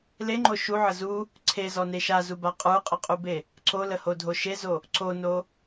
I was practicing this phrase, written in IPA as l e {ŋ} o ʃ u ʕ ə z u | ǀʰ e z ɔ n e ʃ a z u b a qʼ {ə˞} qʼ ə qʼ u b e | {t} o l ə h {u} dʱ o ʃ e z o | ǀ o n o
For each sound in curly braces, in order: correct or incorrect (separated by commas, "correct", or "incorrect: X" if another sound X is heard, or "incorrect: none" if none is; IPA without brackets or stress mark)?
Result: incorrect: ŋ͡ǃ, correct, incorrect: ǀ, incorrect: o